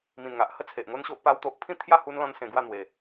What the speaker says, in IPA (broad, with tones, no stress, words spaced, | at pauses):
mĩ˨˩nŋa˨ʔhə˦ t͡sʰe˨ʔŋo˦nɕo˦ʔ pa˦wt̪o˦ʔ pʰĩ˥˧t̪ʰja˥˧hu˧nlɔ̃˧n sẽ˧ɡwa˥˧n̪we˨˩